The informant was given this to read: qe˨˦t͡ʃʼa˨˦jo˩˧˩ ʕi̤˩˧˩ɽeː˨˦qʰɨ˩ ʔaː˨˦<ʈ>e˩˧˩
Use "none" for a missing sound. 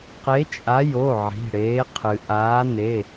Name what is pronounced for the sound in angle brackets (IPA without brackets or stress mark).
n